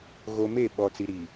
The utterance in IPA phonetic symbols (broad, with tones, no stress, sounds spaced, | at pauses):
ɣ o˨ m e˦˨ ɓ ɔ˨ t͡s i˨ ɾ i˨